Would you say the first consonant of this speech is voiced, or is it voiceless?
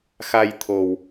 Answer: voiceless